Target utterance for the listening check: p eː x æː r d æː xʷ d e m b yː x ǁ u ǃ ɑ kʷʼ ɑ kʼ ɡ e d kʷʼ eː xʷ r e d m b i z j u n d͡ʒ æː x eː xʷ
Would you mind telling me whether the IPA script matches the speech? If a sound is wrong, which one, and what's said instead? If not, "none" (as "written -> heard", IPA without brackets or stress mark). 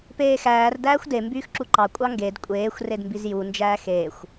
kʼ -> ŋ